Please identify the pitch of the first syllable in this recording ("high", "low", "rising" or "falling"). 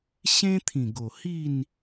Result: high